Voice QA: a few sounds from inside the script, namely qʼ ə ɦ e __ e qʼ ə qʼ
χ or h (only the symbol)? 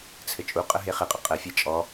χ